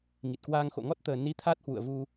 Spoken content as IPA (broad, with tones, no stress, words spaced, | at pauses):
ŋi˨˩t̚kwaː˧ŋxo̰˧˨ ŋɔ˦˥t̚t̪əː˨˩ni˨˦ t̪ʰa˦˥t̚hwṵ˧˨ə̯ vu˧